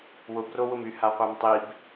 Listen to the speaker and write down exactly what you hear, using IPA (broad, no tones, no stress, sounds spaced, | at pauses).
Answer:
w ʊ b r o w ʊ m y h a qʷ a m tˤ i b